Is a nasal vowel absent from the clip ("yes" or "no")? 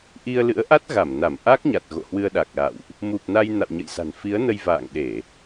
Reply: yes